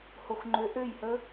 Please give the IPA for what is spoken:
h o x ŋ͡ǃ ø ʔ ø j h ə

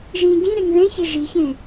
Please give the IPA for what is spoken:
ʒ ĩ ɟ ĩ ɾ e ŋ ð ẽ ç e ʒ i ç ẽ

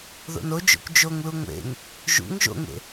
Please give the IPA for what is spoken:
ð o̰ n o d͡ʒ o̰ kʷ d͡ʒ o ŋ l u ŋʷ ḛ ŋ | ʒ ṵ ŋ ʒ o̰ ŋ ḛ

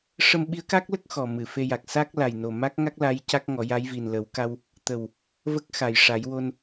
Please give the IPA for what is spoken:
ʂ ə˧ m ɓ i˧˥ ə̯ k a˦˥ k̚ l ə˦˥ k̚ x ɔ˨˩ m ɨ˨˩˨ f e˧ j a˨˩ k̚ s a˦˥ k̚ l a˨˩ j n o˨˩ m a˦˥ k̚ ŋ a˦˥ k̚ l a˧˥ j c a˦˥ k̚ ŋ ɔ˨˩˦ j a˧˥ j v i˨˩ n l ə˨˩˦ w k a˧ w | t̪ ə˨˩ w | v ə˦˥ k̚ x a˨˩ j ʂ a˨˩˦ j w o˧ n

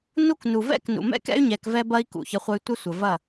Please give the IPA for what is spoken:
n u˦ k n u˨ v ɛ̰˦ k n ṵ˨ m ɛ̰˦ k ɛ̰˦ y̯ ɲ ɛ˧ k v ɛ˦ b ɐ˦ i̯ k ṵ˨ ç ə˧ χʷ ə˧ y̯ tʷ ə˦ sʷ ə˨ v ɐ˦˨

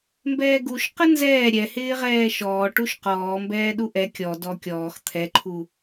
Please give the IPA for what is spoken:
m b ɛː ɡ u ʃ q ə n z ɛː ɾʲ ɛ h ɪː ʁ ɛː ʃ ɔː ʈ u ʃ q ɔː m b ɛː ɗ u ʔ ɛ kʲ ɔ d ɔ kʲ ɔː x t̪ʰ ɛ ǃʰ u

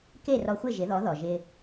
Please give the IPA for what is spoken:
k e˥˩ r ɔ˧ xʷ ɪ˥˩ ʒ ɪ˩˥ ð ɔ˩˥ ð ɔ˩ ʒ ɪ˧

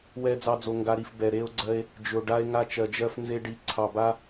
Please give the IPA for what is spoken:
w ɛ˦ d͡z ɑ˦ d͡z o˧ ŋ ɡ a˧ ɾ i˨ f b ɛ˨ ɾ e˧ o̯ ɡ͡ǀ ɜ˧ e̯ | d͡ʒ ʏ˨ o̯ ɖ a˧ e̯ ŋ a˧ t͡ʃ ɜ˨ d͡ʒ ɜ˧ f n z e˧ ɖ i˨˦ ǀʰ ɑ˨ b a˧

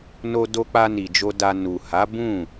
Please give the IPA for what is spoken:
n o˧ d o˧ k͡p a˧ n i˨ d͡ʒ o˧ d a˧ n u˨ h a˨˦ b ũ˦˨

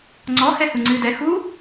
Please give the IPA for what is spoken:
ŋ͡ǀ ɔ h ɛ h u ŋ͡ǀ ɨː d ɛ x u

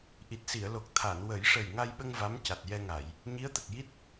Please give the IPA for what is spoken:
ʔ i˨˩ t̚ s i˨˩˨ ə̯ l o˨˩ k̚ t̪ʰ a˨˩˨ n w ə˨˩˦ j ʂ ə˨˩ j ŋ a˧ j ɓ ə˧ ŋ v a˧˥ m c a˨˩ t̚ j ɛ˧ ŋ a˨˩˨ j | ɲ i˧˥ ə̯ t̪ ə˨˩ k̚ j i˦˥ t̚

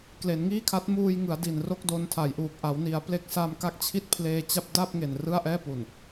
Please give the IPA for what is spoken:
k l e˩˦ n ŋ iː˥˩ kʰ a˦˥ t̚ m uː˧ j ŋ ɯ˩˦ a̯ d i˨˩ n r o˥˩ k̚ d o˧ n tʰ a˨˩ j ʔ uː˨˩ k̚ ʔ a˩˦ w n i˩˦ a̯ p l e˦˥ k̚ s a˧ m k a˦˥ k̚ t͡ɕʰ i˥˩ t̚ pʰ l eː˧ t͡ɕ a˥˩ p̚ d a˥˩ p̚ ŋ e˨˩ n r ɯ˥˩ a̯ ʔ ɛː˥˩ p u˨˩ n

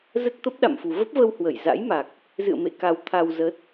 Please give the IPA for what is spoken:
z ə˦˥ t̚ t̪ ə˦˥ p̚ ɗ a̰˧˨ m f u˨˩ v ə˦˥ p̚ v ə˧ w h w ə˧˩ j z a̰˧˥ j m a˨˩ k̚ | z ɨ̰˧˨ ə̯ m ḛ˧˨ k a˧ w t̪ʰ a˧ w z ə˦˥ t̚

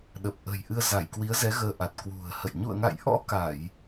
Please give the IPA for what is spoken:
ɗ ə˨˩ p̚ ʔ ə̤˨˩ j ʔ ɨ˧ ə̯ z a˧˩ j k w i˨˦ ə̯ z ɛ˨˦ ɣ əː˧ ʔ a˨˩ t̚ k w ṳ˨˩ ə̯ h ə̰˧˨ j ɲ ṵ˧˨ ə̯ ŋ a̰˧˨ j ʔ ɔ̰˧˥ k a˧˩˨ j

